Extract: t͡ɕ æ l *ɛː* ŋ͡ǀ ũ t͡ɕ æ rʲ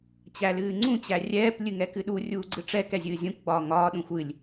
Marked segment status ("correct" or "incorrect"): incorrect